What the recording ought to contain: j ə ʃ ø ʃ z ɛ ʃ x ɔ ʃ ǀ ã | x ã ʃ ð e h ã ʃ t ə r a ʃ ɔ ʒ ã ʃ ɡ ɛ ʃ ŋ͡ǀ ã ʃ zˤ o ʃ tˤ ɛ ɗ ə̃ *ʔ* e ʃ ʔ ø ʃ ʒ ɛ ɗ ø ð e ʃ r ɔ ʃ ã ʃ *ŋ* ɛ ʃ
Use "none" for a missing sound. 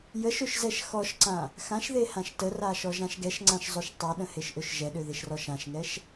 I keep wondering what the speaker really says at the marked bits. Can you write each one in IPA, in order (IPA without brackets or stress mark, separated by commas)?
h, ŋ